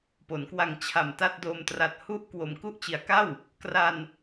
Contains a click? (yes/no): no